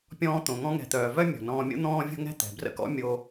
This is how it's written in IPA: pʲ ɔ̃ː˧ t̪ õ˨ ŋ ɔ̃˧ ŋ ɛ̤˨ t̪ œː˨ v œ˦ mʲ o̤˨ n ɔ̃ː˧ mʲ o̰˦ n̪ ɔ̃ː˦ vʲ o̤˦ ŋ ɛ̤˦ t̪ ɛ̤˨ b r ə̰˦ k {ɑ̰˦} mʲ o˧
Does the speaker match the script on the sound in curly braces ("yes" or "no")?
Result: no